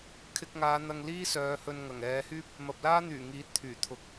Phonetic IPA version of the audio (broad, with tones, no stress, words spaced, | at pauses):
kʰɪ˧k̚ŋaː˨˧ n̪ɐ˧ŋ liː˥sœː˨˧hɵ˧nŋɐ˨˩ŋ ɛː˨˧hyː˥p̚ | mɐ˨p̚laː˥n̪yː˨˩ ŋiː˨˥t̚t̪ʰyː˨˩ t̪ʰʊ˨˥k̚